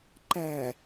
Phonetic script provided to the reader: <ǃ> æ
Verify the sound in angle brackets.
correct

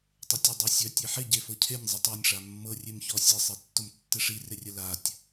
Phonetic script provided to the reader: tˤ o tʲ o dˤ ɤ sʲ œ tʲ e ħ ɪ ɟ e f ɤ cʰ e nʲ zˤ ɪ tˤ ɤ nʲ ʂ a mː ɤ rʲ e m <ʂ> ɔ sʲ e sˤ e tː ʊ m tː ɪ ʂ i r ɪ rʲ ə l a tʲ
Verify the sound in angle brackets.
incorrect: ç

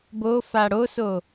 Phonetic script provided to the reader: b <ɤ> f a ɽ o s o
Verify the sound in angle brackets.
incorrect: o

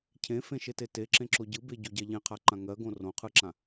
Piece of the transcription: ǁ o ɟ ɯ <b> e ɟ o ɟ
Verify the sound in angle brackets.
correct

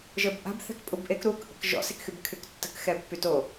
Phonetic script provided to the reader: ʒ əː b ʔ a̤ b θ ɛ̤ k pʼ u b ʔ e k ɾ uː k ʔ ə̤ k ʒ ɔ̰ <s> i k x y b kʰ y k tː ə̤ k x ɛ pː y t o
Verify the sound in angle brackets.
correct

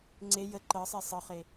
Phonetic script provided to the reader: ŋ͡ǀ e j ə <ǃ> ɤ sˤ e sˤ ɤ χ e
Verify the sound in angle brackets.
correct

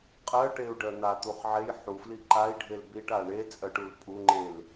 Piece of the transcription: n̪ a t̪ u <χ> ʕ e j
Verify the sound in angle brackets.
correct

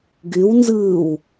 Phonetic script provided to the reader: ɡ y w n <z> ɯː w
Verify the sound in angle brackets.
correct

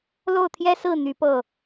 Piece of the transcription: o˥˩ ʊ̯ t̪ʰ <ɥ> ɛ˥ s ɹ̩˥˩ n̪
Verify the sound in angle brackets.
incorrect: j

